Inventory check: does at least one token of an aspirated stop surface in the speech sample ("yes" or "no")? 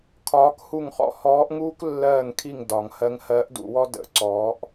yes